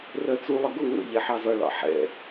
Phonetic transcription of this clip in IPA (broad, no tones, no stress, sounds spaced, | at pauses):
r ɜ t͡s u lˠ ə ɡ ʊ ŋ ə̰ ʎ ɛ ħ ɑ z ʌ ɭ ɑ̰ ħ ɛ̰